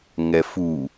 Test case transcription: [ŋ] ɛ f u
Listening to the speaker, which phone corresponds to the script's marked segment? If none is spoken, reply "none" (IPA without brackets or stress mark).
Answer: ŋ